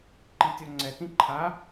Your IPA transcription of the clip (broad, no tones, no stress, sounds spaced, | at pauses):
ǃ i tʲ ɔ ŋ͡ǀ ɛ t ĩ ǃʰ a